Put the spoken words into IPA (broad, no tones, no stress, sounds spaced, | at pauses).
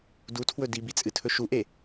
d u tʰ w ɵ d i b i t͡sʼ ɨ tʰ ɵ ʃ u ʔ e